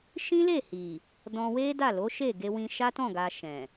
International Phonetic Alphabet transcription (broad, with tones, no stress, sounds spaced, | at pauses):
ʃ ĩ˦ l e˦˨ h i˨ | d ɔ̃˧ w e˦ d a˦˨ l o˨˦ ʃ e˦˨ ɡ e˧ w ĩ˧ ʃ a˦ t ɔ̃˦˨ ɡ a˧ ʃ ɛ̃˨